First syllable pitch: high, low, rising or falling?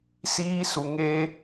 high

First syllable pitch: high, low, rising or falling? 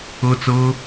high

